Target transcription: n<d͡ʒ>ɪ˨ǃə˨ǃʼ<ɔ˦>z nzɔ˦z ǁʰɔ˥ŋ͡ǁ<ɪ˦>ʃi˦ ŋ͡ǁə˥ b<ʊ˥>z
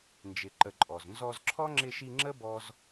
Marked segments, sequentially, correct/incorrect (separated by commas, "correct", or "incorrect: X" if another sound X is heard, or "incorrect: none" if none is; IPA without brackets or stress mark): correct, incorrect: ɔ˩, correct, incorrect: ɔ˥